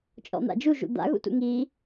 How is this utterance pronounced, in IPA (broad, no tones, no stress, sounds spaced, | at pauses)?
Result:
t͡ʃʼ ɔ̰ n̪ a̰ d͡ʒ u ʒ ṵ d̪ a̰ ɣ ṵ t ṵ ŋ i